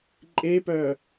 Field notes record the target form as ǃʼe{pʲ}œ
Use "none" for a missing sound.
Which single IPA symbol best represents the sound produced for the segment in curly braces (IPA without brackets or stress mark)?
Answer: p